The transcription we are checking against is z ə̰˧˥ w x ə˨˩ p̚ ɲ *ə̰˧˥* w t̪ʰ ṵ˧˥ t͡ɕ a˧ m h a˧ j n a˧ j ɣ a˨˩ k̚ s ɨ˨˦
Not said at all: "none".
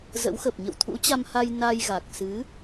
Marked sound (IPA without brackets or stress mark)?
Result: ə̰˧˨